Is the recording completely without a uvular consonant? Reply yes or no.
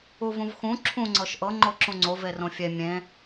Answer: yes